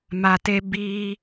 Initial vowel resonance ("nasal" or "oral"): oral